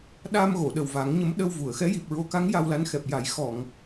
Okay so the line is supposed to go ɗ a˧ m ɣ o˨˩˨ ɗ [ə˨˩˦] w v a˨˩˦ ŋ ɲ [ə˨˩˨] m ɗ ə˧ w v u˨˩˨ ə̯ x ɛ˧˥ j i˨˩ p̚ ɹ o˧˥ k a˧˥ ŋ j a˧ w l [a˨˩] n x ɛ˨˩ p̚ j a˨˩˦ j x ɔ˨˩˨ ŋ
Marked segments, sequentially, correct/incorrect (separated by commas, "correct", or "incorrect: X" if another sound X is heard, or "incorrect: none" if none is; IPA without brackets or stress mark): incorrect: ə˨˩, incorrect: ə˧˥, incorrect: a˧˥